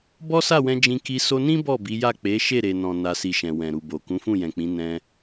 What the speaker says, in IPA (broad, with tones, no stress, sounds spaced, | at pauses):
b ɔ˦ s a˦˨ w ɛ̃˧ d͡ʒ ĩ˧ k i˧ s o˧ n ĩ˦ b ɔ˦˨ b i˨˦ j a˦˨ k͡p e˨˦ ʃ e˦˨ ɾ e˨ n ɔ̃˨ n a˨ s i˨ ʃ ɛ̃˨ w ɛ̃˨ ɾ u˨ b o˨ k ũ˨˦ f ũ˦˨ j ɛ̃˨ k͡p ĩ˨˦ n ɛ̃˧